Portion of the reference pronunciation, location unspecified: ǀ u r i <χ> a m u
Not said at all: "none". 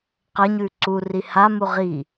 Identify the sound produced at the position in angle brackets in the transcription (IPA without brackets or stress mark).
h